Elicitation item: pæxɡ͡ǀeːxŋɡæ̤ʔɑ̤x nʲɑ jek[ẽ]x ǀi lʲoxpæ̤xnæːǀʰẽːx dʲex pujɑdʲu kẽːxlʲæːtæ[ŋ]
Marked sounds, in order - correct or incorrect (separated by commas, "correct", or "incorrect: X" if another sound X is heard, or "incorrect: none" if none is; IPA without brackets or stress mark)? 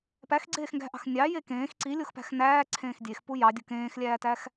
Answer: incorrect: ẽː, incorrect: x